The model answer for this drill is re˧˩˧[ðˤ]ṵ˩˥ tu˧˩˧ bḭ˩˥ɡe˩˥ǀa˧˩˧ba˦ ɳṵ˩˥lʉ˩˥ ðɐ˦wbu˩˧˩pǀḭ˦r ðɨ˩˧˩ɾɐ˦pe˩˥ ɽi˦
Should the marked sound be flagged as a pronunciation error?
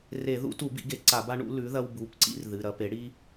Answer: yes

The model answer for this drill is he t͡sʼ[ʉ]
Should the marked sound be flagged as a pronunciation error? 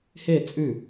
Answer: no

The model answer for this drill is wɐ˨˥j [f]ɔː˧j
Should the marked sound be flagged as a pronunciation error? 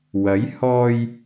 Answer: yes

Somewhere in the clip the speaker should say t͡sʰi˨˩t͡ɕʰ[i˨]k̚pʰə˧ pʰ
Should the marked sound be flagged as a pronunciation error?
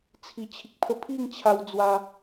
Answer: no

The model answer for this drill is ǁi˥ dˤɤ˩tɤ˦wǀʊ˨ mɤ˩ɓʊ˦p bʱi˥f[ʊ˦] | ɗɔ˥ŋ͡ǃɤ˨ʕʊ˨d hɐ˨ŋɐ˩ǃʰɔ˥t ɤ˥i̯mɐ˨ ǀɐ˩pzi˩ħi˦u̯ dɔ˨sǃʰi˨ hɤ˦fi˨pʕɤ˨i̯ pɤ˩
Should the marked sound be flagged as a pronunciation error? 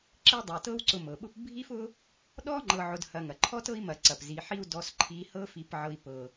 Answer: no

